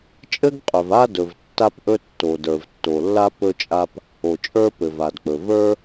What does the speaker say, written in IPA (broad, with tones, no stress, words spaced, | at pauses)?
t͡ʃʼɘ˥ɡqʼɵ˩v a˥dɵ˩v tːa˥pʔɵ˥ tːo˩də˞˩v tːo˩lːa˥ pɵ˥t͡ʃʼa˥p | o˩t͡ʃʼə˞˥ pɘ˩va˩dk͡pɵ˩ və˞˥